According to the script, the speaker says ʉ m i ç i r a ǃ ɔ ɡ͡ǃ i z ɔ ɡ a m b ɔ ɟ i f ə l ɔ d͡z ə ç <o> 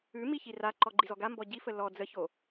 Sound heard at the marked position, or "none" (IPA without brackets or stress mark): o